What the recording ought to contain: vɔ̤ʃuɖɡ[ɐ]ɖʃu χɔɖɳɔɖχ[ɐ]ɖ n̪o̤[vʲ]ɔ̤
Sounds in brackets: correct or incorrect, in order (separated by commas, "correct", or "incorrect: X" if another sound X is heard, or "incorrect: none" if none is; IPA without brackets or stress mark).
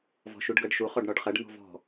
correct, correct, incorrect: v